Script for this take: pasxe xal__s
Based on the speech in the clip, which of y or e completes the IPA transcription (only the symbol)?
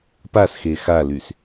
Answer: y